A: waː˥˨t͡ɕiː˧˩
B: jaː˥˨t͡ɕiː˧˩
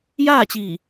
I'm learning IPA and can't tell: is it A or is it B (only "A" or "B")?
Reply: B